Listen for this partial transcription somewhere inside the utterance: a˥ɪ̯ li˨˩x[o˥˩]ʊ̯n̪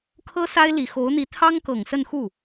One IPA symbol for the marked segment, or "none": o˧˥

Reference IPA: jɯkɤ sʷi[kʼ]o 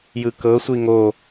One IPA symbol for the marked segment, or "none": ŋ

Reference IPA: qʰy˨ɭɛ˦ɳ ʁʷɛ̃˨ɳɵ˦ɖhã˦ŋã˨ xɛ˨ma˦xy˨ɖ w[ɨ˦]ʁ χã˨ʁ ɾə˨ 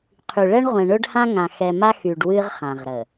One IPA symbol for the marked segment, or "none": ɨ˦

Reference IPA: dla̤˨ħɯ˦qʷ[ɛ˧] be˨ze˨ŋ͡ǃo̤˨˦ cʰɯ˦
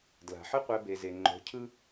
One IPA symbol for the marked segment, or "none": ɛ˧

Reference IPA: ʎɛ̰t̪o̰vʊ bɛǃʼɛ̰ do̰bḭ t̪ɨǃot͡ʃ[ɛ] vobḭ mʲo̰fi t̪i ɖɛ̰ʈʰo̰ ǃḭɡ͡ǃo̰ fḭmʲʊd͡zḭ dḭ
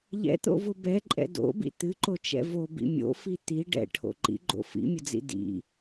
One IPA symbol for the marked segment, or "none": ɛ̰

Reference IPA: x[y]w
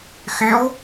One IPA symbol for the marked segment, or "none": y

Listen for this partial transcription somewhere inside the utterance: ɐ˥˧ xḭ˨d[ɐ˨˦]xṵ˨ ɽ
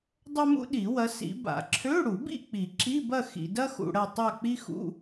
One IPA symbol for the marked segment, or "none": ɐ˥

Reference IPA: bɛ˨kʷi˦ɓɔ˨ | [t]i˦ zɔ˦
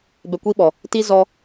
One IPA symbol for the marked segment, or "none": t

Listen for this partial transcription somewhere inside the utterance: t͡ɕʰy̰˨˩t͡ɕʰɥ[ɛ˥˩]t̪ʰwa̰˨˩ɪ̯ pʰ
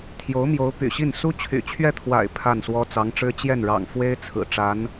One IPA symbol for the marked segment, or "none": ɛ˥˩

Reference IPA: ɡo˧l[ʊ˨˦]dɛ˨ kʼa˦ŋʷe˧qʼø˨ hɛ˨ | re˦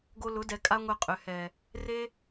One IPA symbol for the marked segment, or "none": ʊ˨˦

